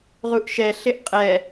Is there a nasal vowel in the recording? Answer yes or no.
no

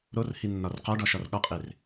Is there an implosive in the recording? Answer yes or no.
yes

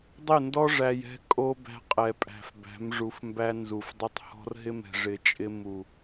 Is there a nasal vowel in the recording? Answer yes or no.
no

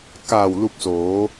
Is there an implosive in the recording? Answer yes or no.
no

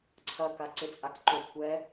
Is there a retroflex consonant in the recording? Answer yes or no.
no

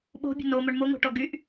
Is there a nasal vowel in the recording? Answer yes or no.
no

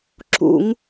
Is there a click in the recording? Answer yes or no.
yes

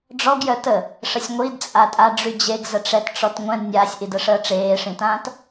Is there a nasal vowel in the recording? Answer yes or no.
yes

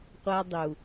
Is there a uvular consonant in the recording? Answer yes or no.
yes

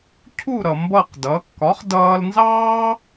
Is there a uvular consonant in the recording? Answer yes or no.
yes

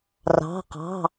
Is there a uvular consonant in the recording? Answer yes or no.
yes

